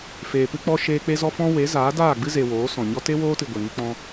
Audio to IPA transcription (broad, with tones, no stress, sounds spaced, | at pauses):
f eː˨ p ɨ˧ k͡p ɔ˧ ʃ eː˧ k͡p e˦ z ɔ˦ f ɔ̃˦ w e˨˦ z aː˨˦ d aː˦˨ ɡ͡b ɨ˦ z e˨ w oː˨˦ s ɔ̃˨ ɲ ɔ˦ t e˦ w oː˦ t ɨ˨ ɡʷ e˨ ŋ i˦ k͡p ɔ̃˦